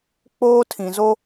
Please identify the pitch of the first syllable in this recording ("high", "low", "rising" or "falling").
high